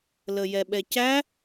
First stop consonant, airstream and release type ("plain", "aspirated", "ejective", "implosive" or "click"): implosive